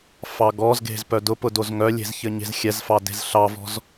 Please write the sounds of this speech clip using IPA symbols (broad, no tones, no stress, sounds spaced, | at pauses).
f ɑ ɡ ɔ z ɡ e̤ z p œ d ʊ p ʊ d o z ŋ œ lʲ e̤ z ç ɘ ɲ e̤ z xʲ ɛ z f ɑ d e̤ z ɬ ɑ v ɔ̤ z